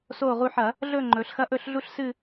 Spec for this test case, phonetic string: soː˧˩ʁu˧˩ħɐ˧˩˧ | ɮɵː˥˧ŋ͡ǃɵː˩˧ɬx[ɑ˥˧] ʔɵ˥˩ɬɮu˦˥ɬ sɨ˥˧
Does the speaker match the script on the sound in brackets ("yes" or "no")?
no